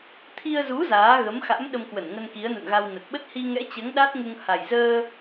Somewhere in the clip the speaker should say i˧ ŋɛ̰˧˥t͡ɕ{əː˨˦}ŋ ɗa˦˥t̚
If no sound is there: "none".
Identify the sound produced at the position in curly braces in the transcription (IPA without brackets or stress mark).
əː˨˦